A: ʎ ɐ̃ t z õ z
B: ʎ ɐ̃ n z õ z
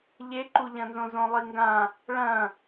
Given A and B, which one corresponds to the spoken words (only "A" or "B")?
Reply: B